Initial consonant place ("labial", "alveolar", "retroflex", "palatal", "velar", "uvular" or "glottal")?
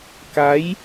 velar